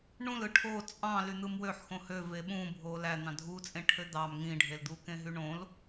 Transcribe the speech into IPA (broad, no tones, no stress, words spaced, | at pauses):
ɳũlɯ ʈʰo t͡sʼɑ̃ lyn̪ɯmwøħxõ høve ɓũ bʱolæ n̪ɑ̃dʱut͡sʼẽ ʈʰød̪ɑm ŋĩɖʱeld̪ukẽ ɦyɳõl